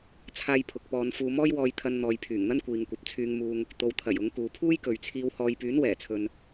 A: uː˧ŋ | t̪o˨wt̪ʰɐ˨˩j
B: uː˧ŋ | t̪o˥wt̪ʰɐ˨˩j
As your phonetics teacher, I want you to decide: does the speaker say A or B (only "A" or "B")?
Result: A